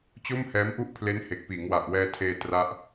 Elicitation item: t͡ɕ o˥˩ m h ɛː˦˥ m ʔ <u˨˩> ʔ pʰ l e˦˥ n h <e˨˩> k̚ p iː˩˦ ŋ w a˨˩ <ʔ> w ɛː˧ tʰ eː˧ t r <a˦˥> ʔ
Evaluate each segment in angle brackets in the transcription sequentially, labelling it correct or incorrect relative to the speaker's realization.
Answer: incorrect: u˥˩, correct, correct, correct

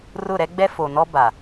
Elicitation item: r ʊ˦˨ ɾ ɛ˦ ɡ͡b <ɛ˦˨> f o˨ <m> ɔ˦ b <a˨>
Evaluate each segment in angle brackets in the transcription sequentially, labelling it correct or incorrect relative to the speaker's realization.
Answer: incorrect: ɛ˦, incorrect: n, correct

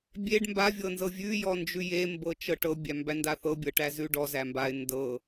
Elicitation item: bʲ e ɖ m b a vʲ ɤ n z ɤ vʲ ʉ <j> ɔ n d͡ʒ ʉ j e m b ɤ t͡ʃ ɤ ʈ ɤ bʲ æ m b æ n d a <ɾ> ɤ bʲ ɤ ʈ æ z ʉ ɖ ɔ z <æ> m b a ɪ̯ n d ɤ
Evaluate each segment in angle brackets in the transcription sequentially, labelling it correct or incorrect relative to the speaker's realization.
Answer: correct, incorrect: θ, correct

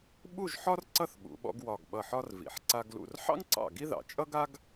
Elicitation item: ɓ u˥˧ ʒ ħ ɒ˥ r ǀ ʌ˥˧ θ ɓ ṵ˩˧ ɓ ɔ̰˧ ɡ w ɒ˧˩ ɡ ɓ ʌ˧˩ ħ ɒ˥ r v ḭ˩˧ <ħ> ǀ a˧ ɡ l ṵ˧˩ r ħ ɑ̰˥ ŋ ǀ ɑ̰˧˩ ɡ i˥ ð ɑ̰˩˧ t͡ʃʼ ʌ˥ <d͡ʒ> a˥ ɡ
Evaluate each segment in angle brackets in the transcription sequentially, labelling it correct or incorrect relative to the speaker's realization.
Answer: correct, incorrect: ɡ

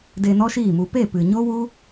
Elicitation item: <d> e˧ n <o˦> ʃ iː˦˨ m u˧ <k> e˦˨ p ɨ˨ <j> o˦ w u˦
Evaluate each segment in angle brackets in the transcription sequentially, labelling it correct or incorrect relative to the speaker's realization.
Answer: correct, incorrect: ɔ˦, incorrect: p, incorrect: ɲ

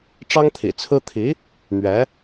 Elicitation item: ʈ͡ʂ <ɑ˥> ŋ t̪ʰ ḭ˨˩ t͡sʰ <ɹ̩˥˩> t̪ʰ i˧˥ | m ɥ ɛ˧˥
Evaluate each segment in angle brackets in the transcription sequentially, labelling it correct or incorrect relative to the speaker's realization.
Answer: correct, incorrect: ɹ̩˥

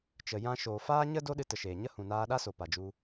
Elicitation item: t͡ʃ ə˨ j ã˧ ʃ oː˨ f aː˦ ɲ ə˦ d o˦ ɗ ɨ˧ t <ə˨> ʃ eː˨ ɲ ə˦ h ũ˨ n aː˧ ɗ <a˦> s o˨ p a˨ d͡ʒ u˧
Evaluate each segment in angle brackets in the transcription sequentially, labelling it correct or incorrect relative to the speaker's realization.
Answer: correct, correct

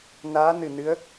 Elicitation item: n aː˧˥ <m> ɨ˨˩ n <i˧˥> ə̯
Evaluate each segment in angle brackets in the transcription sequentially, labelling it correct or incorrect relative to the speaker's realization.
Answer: incorrect: n, incorrect: ɨ˧˥

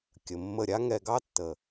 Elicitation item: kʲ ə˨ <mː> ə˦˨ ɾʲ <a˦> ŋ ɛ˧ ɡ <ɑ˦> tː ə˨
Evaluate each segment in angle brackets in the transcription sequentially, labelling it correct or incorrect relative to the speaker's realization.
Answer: correct, correct, correct

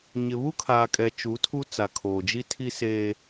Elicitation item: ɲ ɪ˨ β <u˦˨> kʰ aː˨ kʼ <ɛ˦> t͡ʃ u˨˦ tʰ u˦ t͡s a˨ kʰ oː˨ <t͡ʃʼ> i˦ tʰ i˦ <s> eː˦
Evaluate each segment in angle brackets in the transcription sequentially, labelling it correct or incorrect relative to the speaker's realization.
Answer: incorrect: u˦, incorrect: ɛ˨, incorrect: d͡ʒ, correct

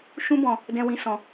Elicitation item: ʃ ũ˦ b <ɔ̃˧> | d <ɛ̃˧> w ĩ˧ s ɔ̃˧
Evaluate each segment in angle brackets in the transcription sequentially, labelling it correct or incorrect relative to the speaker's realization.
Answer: correct, correct

